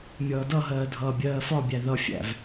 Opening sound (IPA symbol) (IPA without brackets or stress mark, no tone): mʲ